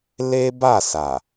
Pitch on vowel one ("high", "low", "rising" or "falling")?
high